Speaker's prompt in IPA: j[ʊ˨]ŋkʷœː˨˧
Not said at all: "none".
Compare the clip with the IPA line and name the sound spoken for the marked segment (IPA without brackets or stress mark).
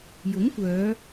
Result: ʊ˨˥